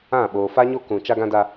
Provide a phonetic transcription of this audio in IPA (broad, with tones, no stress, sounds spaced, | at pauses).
ã˦˨ ɓ oː˨ f a˦ ɲ o˦ k ũ˨ t͡ʃ a˦ ɡ ã˦ d a˦